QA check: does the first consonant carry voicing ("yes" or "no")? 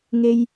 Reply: yes